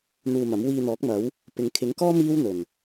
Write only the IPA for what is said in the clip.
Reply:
n̪ uː˧ m ɐ˨˥ m w iː˧ n̪ ɔː˨˥ k̚ m ɐ˨˥ w | p ɪ˨ ŋ kʰ ɪ˨˥ ŋ k ɔː˥ m iː˥ w n̪ ɵ˨˩ n

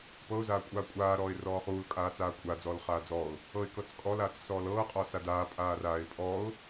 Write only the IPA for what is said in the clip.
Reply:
p ɤ ʊ̯ z aː kʷʼ aː kʷʼ aː ɾ ɔː ɪ̯ r ɔː χ uː l kʼ aː t͡s aː kʷʼ a d͡z ɔː l χ aː d͡z ɔː ʊ̯ | ɤ ɪ̯ k ɤ t͡s kʼ ɔ l aː t͡s s ɔː l ɤː qʼ ɔ s a d aː pʼ aː r aː ɪ̯ pʼ ɔː ʊ̯

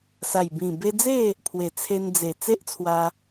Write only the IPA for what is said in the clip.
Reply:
s a˨˩ j b ĩ˨˩ b e˧ d͡z e˥˧ | pʰ w e˨˩ t͡sʰ e˧ n d͡z e˨˩ t͡s e˦ ʔ t͡sʰ w a˧

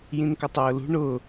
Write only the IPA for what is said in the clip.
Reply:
j ĩ n k ə tˤ ʊː l ṳ ɳ ʊː

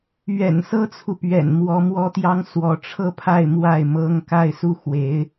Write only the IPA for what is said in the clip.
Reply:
ɥ ɛ̰˨˩ n s ɤ˥ t͡sʰ u˨ p ɥ ɛ̰˨˩ n m w ɔ˧˥ m w ɔ˥ t̪ j ɑ˥ ŋ s w ɔ˧˥ ʈ͡ʂʰ ɤ˥˧ pʰ a˥˧ ɪ̯ m w a˥˩ ɪ̯ m ɤ˥ ŋ k a˥˧ ɪ̯ s u˥˩ x w e˧˥ ɪ̯

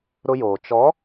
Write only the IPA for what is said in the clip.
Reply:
ɾ ʊ˦ j oː˨ t͡ʃ ɔ˨˦

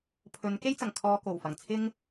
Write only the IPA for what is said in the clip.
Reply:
pʰ ɵ˨˧ n k e˥ j t͡s ɐ˨˩ ŋ kʰ ɔː˧ k o˨˩ w f ɐ˨˩ ŋ t͡sʰ ɪ˧ ŋ

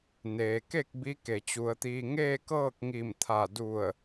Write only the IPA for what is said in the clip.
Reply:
n eː˩ k e˥˨ k̚ b i˧˥ k e˩ t͡ɕ u˩˧ ə̯ t̪ iː˧ ŋ eː˥˨ k ɤː˥˨ k̚ ŋ i˧˩ m t̪ʰ a˧˩ d u˧˩ ə̯

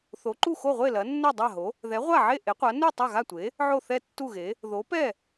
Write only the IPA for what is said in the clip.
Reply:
θ o˩˥ ǃ u˥˩ x o˥˩ ʁʷ e˥˩ l ɐ˩˥ nː ɛ˥˩ dˤ a˥˩ ɦ o˩˥ | ð ɛ˩˥ ʁʷ a˥˩ ʕ e˥˩ ʔ e˩˥ qʷ a˩˥ n u˥˩ tˤ a˥˩ ɣ a˥˩ tʷ e˩˥ | ʕ o˥˩ θ ɛ˥˩ tː u˥˩ ɣ e˩˥ | ð o˩˥ p ɛ˥˩

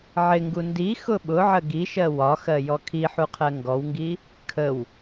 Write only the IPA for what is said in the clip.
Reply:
ʕ ɪ ŋ ɡ u n d i x ʊ ɓ ʊ ʕ ə ɡ i ʃ ɜ w ɒ x ɜ j ɔ kʰ i ħ u qʰ ɜ ŋ ɡ ɔ w ŋ ɡ i | kʰ ə w

